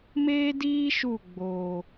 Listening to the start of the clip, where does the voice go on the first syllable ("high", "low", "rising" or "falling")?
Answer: high